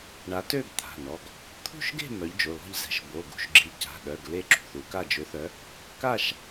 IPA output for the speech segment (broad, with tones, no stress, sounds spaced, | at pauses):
ɳ a˨˦ t ø˥˧ ɡ t̪ʰ a̤˩˧˩ n ɔ˩˧˩ ɡ | t̪ʰ ṳ˥˧ ʃ ɡ e̤˥˧ m œ˨˦ ʎ d͡ʒ o˩˧˩ l ɔ̤˥˧ ʎ z ɛ̤˨˦ ʃ b o˩˧˩ ɡ ṳ˥˧ ʃ ɡ͡ǁ i˨˦ c a̤˩˧˩ ɗ œ˩˧˩ ɡ l e˥˧ ǁ ṳ˩˧˩ θ u˨˦ k a˥˧ d͡ʒ ø˨˦ θ œ˨˦ | k a˥˧ ʃ